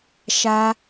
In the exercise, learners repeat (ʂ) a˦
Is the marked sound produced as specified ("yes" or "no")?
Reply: no